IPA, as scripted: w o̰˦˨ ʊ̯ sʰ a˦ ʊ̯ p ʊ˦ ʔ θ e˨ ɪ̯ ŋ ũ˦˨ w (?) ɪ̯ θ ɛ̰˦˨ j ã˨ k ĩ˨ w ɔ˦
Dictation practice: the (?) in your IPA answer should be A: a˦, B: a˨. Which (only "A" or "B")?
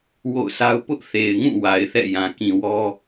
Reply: B